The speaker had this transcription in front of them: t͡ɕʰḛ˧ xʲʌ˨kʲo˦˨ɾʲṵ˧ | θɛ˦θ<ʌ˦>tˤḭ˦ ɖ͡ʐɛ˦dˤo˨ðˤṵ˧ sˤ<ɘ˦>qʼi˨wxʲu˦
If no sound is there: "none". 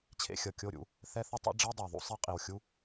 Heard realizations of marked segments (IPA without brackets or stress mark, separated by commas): ʌ˦, e˦